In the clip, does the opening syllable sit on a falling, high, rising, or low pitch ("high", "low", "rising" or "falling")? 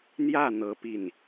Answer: falling